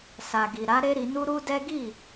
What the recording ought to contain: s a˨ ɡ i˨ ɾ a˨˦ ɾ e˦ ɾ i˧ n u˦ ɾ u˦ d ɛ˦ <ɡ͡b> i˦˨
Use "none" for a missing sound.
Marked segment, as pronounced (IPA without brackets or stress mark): ɡ